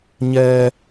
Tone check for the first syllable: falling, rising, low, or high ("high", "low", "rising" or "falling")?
high